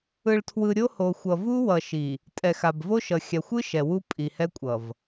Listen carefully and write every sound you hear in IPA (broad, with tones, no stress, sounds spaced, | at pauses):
ɯ˨ ɭ tʰ w ɯ˨ ɾʲ o˦ h o˨ xʷ ʌ˨ v u˦ w ʌ˨ ʃ i˨ | tʼ ɛ˨ x a˨ b v o˦ ʃ ʌ˨ xʲ a˨ xʷ ɯ˦ ʃ ɛ˨ w u˦ pʼ i˨ h ɛ˦ kʷʼ ʌ˨ v